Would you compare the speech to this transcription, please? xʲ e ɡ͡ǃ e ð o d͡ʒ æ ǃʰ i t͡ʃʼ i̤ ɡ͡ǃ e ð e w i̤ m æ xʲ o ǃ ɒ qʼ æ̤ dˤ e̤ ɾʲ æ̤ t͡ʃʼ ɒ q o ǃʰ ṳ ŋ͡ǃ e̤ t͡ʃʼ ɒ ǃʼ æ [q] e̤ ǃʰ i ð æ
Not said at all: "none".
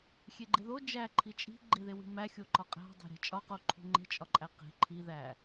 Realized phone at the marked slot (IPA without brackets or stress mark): q